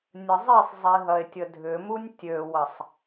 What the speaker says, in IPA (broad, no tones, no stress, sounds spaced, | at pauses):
nʲ ə zˤ i sˤ zˤ i ɦ ɐ e̯ tʲ ə dʱ ʏ m u nʲ tʲ ø w ɐ sˤ